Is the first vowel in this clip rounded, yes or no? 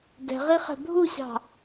no